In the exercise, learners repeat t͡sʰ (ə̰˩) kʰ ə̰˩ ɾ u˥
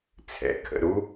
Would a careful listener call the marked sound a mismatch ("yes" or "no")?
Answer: yes